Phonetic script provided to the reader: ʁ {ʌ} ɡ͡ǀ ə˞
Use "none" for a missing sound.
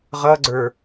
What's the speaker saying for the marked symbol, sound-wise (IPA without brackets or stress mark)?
ʌ